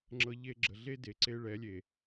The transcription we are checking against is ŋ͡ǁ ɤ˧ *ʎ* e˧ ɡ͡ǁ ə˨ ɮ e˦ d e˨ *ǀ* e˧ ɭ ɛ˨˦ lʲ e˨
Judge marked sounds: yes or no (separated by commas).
yes, yes